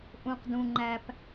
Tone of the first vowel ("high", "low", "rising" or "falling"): low